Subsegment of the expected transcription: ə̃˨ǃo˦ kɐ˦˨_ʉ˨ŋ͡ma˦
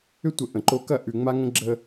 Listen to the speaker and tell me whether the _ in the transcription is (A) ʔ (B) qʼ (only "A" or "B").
A